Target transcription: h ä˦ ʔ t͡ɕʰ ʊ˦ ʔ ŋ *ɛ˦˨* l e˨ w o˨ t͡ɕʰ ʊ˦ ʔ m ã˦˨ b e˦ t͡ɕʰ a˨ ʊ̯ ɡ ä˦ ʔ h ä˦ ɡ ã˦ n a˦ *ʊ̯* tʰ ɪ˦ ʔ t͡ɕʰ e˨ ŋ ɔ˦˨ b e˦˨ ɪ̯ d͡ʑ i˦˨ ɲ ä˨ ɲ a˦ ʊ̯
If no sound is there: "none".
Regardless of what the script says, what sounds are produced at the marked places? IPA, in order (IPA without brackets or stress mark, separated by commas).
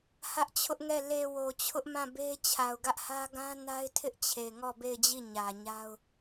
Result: ɛ˦˨, ɪ̯